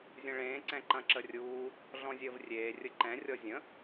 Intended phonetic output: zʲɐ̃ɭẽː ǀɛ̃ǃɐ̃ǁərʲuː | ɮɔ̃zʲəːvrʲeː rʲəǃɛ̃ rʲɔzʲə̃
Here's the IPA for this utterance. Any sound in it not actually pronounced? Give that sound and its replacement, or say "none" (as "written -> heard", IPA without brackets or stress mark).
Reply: none